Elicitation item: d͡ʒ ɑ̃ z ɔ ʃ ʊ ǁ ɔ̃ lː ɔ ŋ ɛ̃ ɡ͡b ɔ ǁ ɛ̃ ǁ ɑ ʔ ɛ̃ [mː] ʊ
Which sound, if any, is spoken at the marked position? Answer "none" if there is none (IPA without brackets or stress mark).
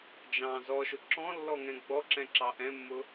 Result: mː